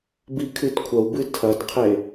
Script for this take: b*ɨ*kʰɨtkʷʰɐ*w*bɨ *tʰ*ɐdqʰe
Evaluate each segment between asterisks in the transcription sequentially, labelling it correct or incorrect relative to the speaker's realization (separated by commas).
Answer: incorrect, correct, correct